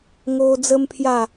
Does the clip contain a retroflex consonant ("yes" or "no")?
no